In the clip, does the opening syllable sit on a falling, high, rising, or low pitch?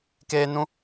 high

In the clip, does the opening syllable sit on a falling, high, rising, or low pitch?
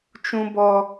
low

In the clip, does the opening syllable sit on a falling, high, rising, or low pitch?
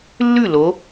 falling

